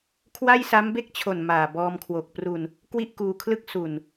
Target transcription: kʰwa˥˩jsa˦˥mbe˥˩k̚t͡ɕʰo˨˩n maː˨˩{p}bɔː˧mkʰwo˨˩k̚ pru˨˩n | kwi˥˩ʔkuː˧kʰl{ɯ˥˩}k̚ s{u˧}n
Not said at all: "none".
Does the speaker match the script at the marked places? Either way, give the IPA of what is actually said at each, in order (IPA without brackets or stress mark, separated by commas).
none, ɯ˥˩, u˨˩